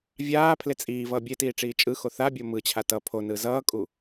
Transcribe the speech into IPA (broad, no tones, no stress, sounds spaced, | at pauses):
vʲ aː pʰ l e t͡sʼ iː v ʌː bʲ e t iː ʈ͡ʂ iː t͡ʃʼ ɯ x o θ a bʲ o m ɯ t͡ɕʰ a t ʌ pʰ o n ɯ z ʌː kʼ u